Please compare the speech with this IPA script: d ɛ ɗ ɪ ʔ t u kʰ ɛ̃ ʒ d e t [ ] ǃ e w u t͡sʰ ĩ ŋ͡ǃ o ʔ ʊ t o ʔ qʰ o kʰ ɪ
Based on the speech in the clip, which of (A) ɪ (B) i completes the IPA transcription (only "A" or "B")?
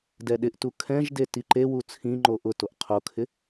B